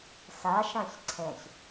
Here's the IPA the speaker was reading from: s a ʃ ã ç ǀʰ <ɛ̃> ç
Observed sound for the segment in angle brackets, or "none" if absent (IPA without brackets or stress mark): ɛ̃